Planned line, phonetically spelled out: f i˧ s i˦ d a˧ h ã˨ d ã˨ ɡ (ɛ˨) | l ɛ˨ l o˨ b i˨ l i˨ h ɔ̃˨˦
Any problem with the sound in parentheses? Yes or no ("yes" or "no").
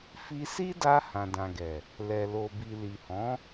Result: no